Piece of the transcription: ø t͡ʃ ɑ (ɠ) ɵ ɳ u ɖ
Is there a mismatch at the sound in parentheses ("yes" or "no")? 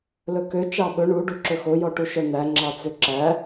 yes